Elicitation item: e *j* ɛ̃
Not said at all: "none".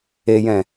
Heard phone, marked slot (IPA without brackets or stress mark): j